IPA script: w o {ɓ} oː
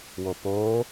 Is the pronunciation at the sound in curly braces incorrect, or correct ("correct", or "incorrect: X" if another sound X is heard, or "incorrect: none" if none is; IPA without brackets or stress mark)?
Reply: incorrect: p